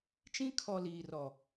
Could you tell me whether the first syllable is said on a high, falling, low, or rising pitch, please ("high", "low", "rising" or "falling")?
high